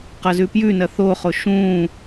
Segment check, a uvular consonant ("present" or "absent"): present